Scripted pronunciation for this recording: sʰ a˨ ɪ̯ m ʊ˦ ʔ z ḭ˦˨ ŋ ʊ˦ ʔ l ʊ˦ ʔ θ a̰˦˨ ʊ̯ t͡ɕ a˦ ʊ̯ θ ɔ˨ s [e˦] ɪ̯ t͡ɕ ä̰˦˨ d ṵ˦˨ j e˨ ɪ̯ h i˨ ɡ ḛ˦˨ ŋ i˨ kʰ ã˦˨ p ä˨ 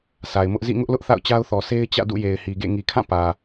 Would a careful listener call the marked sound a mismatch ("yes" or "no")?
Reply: no